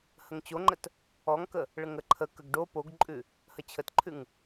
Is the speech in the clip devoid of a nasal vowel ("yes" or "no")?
yes